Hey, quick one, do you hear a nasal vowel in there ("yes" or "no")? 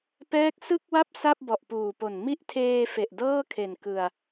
no